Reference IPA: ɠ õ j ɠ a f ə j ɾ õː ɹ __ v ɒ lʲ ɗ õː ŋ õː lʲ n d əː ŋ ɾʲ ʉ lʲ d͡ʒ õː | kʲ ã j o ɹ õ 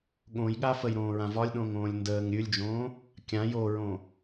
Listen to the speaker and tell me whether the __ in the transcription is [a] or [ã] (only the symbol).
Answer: ã